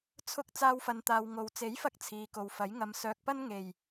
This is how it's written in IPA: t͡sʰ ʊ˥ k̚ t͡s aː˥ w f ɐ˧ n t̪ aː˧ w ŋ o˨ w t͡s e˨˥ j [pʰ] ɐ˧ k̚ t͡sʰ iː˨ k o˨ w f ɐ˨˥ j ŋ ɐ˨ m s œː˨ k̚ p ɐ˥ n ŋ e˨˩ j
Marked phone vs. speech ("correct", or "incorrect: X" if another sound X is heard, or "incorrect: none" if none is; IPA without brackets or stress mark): incorrect: f